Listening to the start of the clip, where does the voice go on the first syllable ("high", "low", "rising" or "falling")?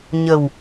low